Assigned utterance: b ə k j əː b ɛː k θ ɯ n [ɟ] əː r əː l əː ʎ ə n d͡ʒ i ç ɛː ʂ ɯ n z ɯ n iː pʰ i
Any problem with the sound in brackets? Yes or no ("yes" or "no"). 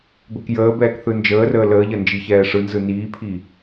yes